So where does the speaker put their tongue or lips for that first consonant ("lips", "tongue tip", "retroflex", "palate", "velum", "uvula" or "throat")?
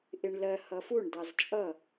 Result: throat